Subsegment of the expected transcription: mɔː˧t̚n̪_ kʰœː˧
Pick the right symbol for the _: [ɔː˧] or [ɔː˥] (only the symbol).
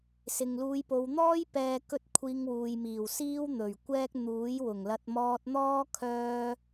ɔː˥